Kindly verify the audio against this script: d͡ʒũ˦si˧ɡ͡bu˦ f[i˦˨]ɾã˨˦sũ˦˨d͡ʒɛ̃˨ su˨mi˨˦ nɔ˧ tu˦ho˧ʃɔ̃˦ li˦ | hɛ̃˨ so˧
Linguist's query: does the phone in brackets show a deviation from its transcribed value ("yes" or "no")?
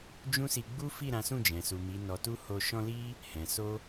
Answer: no